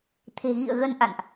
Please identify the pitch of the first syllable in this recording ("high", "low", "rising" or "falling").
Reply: low